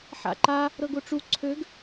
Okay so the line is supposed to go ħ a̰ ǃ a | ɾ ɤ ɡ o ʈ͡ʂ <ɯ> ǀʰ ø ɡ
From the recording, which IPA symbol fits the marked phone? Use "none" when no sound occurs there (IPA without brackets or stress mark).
u